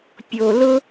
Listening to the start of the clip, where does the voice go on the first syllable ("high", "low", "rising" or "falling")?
low